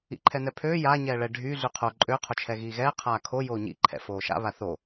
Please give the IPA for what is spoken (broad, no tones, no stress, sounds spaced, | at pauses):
ḭ ǃʰ ɛ n ɛ pʰ øː j a ɲ ɛː ɭ ɛ ɖʱ y ɮ y qʰ o ǃʼ ø qʰ o t͡ʃʰ ɛ ɣ iː ɣ ɛː qʰ aː kʰ o j oː ɲ ḭ ǃʰ ɛ̰ f oː ʃ a̰ β a θ o